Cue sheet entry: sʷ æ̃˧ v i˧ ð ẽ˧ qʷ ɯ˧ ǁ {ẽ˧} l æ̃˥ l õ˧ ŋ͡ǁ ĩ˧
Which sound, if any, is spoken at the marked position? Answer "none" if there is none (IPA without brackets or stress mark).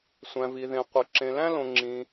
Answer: ẽ˧